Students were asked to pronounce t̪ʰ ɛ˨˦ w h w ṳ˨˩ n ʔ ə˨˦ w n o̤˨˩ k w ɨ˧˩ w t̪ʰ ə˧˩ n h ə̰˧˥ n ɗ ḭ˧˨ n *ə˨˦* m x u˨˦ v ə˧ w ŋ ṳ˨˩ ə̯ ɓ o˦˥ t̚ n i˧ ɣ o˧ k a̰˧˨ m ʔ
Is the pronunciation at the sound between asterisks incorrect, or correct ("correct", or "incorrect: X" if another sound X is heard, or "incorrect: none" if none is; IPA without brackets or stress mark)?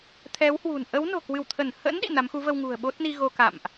incorrect: a˨˦